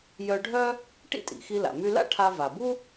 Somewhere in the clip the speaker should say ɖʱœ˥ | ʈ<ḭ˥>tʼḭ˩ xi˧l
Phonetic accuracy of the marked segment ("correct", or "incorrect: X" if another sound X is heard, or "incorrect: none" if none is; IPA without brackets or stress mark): correct